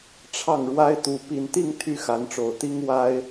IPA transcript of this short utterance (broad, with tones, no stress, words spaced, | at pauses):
ʈ͡ʂʰɑ˥˩ŋɻwa˥ɪ̯ t̪u˧˥ pi˨˩nt̪i˥˩ŋ t̪ʰy˥xa˧˥nʈ͡ʂo˨˩ʊ̯t̪i˥ŋ wa˥ɪ̯